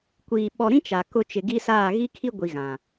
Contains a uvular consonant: no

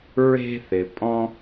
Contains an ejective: yes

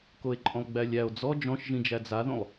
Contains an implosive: no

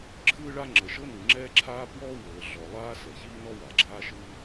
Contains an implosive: no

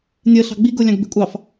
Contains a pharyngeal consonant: no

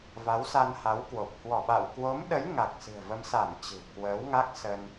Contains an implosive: yes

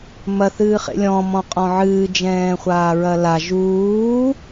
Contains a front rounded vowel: no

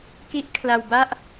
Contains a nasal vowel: no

